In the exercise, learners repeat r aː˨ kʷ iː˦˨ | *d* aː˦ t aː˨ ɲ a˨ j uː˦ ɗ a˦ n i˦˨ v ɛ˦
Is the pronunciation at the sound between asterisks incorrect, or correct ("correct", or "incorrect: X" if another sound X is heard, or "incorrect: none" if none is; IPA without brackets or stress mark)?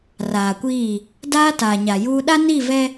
correct